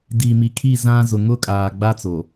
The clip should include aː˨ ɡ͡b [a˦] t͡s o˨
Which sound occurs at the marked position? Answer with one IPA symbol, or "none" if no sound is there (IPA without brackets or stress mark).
a˦